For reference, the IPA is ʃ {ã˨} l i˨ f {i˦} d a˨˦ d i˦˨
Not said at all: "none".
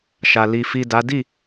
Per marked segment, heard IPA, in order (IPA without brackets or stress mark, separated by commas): a˨, i˨